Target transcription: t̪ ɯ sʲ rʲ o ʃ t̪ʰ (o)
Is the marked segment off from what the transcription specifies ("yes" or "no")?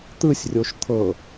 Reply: yes